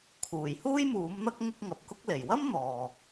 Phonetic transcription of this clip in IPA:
kʰuː˨˩jhuː˥jmuː˨˥mn̪ɐ˥k̚ ŋʊ˥k̚ŋɐ˨p̚kʊ˥k̚ le˨˩jwɐ˥m n̪ɔː˨

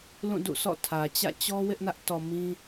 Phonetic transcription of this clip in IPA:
lũ˦˨dṵ˦˨sʰɔ̰˦˨ tʰä˨ t͡ɕä̰˦˨t͡ɕɔ˦ wɪ˦ʔnä˦ʔtɔ˨ mĩ˦

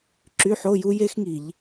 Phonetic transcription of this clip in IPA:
ǁy˧˥˧ħo˧˥˧ju˦˥ je˦˥xŋi˧˩˧ʎ

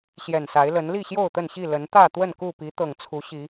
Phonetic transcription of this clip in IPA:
ɕjɛ˨˩nsa˨˦ɪ̯lə˨˦n li˥˨ɕjo˥˨ʊ̯t̪ə˥˨nɕi˥˨ lə˨˦nt̪ä˥˨ t̪wə˥˨nku˥˨pi˨˦ t̪ɤ˨˩ŋt͡sʰu˨˦ɕi˨˦

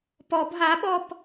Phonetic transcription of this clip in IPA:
pɔb ɦaɓɔp

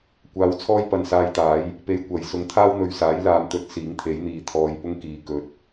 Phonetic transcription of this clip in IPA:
kʷaː˧wt͡sʰɔː˥jpɐ˨n saː˧jt̪aː˨˥j | pe˧jkʷɐ˨jsʊ˧ŋ t̪ʰaː˥wn̪ɵ˨ɥsaː˨˥j laː˨mt̪ɵ˧t̚ siː˨˥ŋt̪ʰe˨˥jn̪iː˨ t̪ʰɔː˧jpʊ˥ŋkiː˨˧ kɵ˨t̚

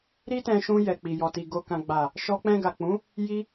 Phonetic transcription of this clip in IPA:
ɾi˦tɛ̃˧ʃũ˧ jɛ˨k͡pi˨ jɔ˨ti˨ ɡo˨kã˨ɡ͡ba˨ | ʃɔ˧k͡pɛ̃˧ɡa˨k͡pũ˨˦ | ji˧

